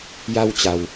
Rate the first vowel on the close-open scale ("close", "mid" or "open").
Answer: open